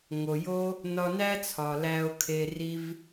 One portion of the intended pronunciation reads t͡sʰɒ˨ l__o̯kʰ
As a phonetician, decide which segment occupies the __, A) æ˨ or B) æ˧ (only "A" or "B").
B